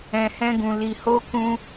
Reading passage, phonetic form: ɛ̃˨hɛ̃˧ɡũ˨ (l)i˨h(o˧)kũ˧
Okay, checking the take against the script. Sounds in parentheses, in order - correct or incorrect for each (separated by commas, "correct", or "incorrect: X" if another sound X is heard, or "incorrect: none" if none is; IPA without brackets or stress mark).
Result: correct, correct